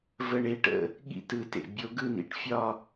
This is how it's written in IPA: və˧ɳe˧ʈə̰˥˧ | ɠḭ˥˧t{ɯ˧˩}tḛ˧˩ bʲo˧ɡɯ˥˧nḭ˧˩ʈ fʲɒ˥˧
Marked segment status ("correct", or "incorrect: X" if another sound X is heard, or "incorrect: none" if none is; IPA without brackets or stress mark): correct